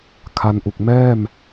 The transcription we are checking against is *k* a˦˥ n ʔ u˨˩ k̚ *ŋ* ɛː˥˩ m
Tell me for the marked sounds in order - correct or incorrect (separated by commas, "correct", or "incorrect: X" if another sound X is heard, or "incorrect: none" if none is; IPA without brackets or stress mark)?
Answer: incorrect: kʰ, incorrect: m